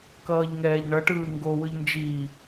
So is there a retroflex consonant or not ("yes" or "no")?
yes